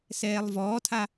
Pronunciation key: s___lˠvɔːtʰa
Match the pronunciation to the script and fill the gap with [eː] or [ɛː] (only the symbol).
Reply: ɛː